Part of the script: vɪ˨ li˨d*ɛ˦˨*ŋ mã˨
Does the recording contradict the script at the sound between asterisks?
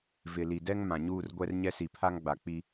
yes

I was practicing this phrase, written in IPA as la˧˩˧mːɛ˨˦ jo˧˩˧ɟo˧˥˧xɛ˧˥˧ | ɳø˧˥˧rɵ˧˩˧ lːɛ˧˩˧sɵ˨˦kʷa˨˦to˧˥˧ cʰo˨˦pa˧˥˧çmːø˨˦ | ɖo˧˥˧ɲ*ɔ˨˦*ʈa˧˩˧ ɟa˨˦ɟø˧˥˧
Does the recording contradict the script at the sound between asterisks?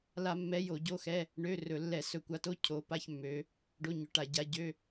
yes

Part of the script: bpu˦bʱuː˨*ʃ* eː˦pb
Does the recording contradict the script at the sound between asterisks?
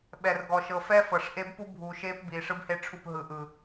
no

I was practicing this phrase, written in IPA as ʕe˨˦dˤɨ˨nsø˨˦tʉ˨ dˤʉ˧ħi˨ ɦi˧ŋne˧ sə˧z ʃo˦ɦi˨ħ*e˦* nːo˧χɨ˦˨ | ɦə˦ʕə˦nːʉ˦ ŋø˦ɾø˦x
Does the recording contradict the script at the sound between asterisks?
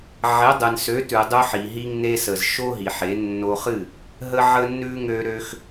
yes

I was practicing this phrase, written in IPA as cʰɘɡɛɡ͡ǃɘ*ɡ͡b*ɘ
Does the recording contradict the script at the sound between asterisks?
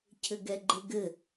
yes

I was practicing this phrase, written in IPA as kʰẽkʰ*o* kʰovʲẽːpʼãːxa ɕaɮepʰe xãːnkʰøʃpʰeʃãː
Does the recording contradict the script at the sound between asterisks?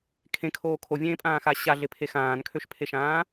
yes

